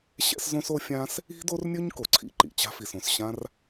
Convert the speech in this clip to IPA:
ɕ ɛ̰˥ s z õ˥ s o˥ fʲ ã˥ s | i̤˥ d o˥ r nʲ ɵ˥ ɲ k o˩ ǀʰ ḭ˥ ǃ ḭ˩ t͡ɕ a̤˥ f i˩ s õ˩ s ɕ ã˥ r

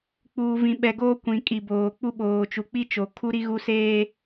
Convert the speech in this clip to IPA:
k͡p uː˨ v ĩ˨ ɓ ɛ˨ ɡ oː˦ kʷ ĩ˨ kʼ i˨ b oː˨ k͡p u˦ ɓ oː˨ t͡ʃ u˨ k͡p i˦ t͡ʃ o˨ kʰ u˦ ɾ i˦ ɣ u˦ s eː˦

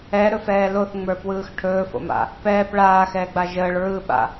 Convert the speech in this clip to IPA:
ɛ ɾ ɵ f ɛː l o θ ŋ͡m ə˞ p w ɯː x ʈʰ ɵː f o̰ m a̰ | p ɛː p ɭ aː x ɛː ɡ͡b a ʒ əː ɭ ɹ ɯ ɓ a̰

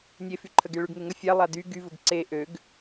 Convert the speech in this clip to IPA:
nʲ e f y ǃʰ ə ɡ e ɭ y ɡ ŋ e ŋ ə fʲ a lˠ a d y ɡ y v ʊ ɡ ǀ e ʔ ø ɡ

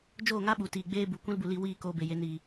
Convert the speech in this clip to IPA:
d͡ʒ oː˦˨ ŋ a˦ ɓ u˨ t iː˨ ɡ͡b eː˦ b u˨ kʷ ĩ˦ l b u˨ l i˧ w iː˦˨ k oː˧ b e˨ j e˨˦ n iː˨

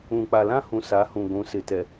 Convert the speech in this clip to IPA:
ũ˨ k͡p a˨ l ã˦ h ũ˨ s a˨˦ h ũ˨ ɡʷ ũ˨˦ s ɪ˨ t ɛ˨

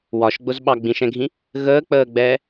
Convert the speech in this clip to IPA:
w ɒ ʃ ɡ͡b ʊ z ɓ ɑ ɡ͡b ĩ ʃ ɛ̃ ɡʱ ĩ | ɣ əː k͡p əː ɡ͡b ɛː

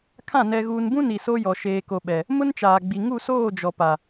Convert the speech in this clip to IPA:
kʰ ã˦˨ n ɛ˨ ɣ uː˨ n b ũ˦ n i˨ s o˦ j ɔ˨ ʃ eː˨ k o˨ ɓ ɛ˨ | m ʊ˦ n t͡ʃ aː˨ ɡ͡b i˨ ŋ u˦˨ s oː˦˨ d͡ʒ ɔ˨ p a˨

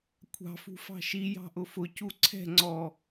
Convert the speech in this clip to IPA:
kʷʰ ɑ̤ f ṳ f ɑ̤ ʃ i j ɑ̤ ʔ ʊ f ʊ c u ǀʰ ɛ̤ ŋ͡ǀ ɔ

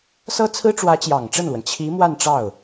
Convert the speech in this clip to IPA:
s ɤ˥ t͡sʰ ɹ̩˥ ʈ͡ʂ w ä˧˥ t͡ɕ j ɑ˨˩ ŋ ʈ͡ʂ ə˥˩ n l w ə˩ n t͡ɕʰ i˧˥ m w a˥˧ n ʈ͡ʂ ɑ˥˩ ʊ̯

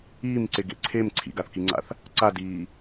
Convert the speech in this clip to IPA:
iː m ǀ e ɡ ḛ ǀʰ e m ǀʰ ḭ ɡ a θ k i ŋ͡ǀ a̰ θ | ǀ a d iː

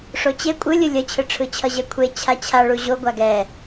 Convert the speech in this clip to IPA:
ʂ o t͡ɕ e kʷʼ ɯ lʲ ɯ lʲ ʌ t͡ɕʰ ɯ ʈ͡ʂʰ ɯ t͡ɕʰ ʌ ʑ ɛ kʷʰ e t͡ɕʰ a t͡ɕʰ a ɭ u ʑ o ɡʷ a ɡ ɛ

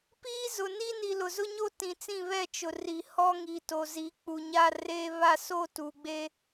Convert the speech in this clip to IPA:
p iː˦ z ʊ˨ n i˦ n i˨ l ʊ˨ z ʊ˦ ɲ o˦ t ĩ˨ t͡s ĩ˦˨ β ɛ˦˨ t͡ʃ ʊ˨ r i˨ h ɔ˦ ŋ i˨ t o˨ z i˨˦ k͡p u˨ ɲ a˦ r eː˦ β a˦˨ s o˦ t u˨ ɡ͡b e˦

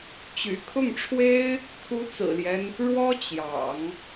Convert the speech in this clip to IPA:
t͡ɕ y̰˨˩ kʰ ʊ˥˩ ŋ ʈ͡ʂʰ w e˥ ɪ̯ | kʰ u˧˥ t͡s ɹ̩˨˩ l j ɛ˦ n | ɻ w ɔ˥ t͡ɕ j ɑ̰˨˩˦ ŋ

